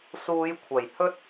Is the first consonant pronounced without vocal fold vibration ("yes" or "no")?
yes